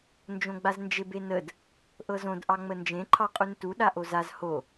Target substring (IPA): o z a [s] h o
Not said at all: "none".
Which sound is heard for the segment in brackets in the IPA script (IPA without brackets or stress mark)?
z